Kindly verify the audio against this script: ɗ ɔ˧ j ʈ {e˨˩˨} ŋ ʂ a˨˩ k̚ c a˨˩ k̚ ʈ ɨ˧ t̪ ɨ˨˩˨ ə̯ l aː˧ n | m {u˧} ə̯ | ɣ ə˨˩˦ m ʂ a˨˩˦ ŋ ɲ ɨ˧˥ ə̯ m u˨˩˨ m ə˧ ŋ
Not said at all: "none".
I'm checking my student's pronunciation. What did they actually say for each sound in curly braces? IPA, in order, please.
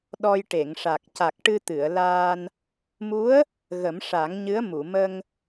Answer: e˨˩˨, u˧˥

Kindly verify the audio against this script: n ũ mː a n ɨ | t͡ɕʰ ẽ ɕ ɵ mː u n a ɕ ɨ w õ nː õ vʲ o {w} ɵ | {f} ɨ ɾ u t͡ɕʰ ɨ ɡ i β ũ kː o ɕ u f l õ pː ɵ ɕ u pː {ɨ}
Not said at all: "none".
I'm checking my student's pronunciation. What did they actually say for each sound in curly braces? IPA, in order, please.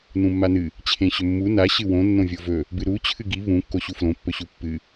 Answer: v, b, ɨ

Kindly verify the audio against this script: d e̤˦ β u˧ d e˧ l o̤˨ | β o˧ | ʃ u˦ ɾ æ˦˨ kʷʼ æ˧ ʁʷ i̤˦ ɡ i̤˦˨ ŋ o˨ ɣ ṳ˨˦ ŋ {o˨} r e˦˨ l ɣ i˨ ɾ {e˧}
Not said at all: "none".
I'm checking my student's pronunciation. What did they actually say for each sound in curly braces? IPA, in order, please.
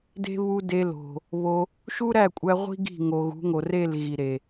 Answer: o˨, e˨

